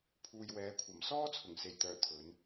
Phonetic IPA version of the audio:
pʰ uː˨ j w ɛː˨˧ kʷʰ ɐ˨˩ m s ɔː˥ t͡sʰ ʊ˨˩ ŋ s e˨˩ j t̪ œː˨˩ t̪ʰ ɵ˨˧ n

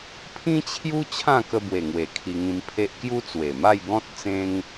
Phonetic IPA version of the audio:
pʰ ĩ˦ t͡ɕʰ j u˦ t͡ɕʰ ã˥˧ k ə˧ b w e˨˩ ŋ w e˨˩ kʰ i˧ ŋ ĩ˧ m pʰ e˦ ʔ k j u˦ t͡s w e˨˩ m a˥˧ j ɡ ɔ̃˦ t̚ t͡s ẽ˦ ŋ

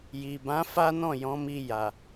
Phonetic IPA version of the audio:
j i˨ b ã˨˦ f a˦ n ɔ̃˦˨ j ɔ̃˨˦ m i˧ j a˨

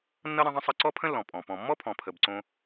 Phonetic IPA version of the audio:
nː ʌ˥ ɾ ə̃˦ ðˤ ə̃˥ sˤ ə˦ ǀ ɔ˥ pʰ ə̃˥ lː ɔ̃˩ pʼ ɔ̃˩ p ɔ̃˩ mː ɔ˥ pʰ ɔ̃˩ pʰ ə˩ b ǀ õ˨

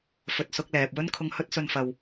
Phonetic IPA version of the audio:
f ɵ˨ t̚ s ʊ˧ k̚ l ɛː˨ p̚ w ɵ˧ n kʰ ʊ˨ ŋ h ɵ˧ t̚ s ɵ˨ n f ɐ˨ w

